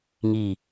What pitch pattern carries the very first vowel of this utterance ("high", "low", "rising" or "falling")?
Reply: low